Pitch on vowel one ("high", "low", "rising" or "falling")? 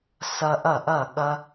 high